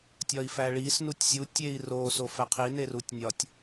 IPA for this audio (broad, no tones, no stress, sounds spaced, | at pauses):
tʲ ɒ i̯ f æ ɭ i s n u tʲ sʲ u tʲ e i̯ r o s o f æ qʰ i n e r u tʲ nʲ ɒ tʲ